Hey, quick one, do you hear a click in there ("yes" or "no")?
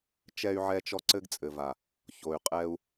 yes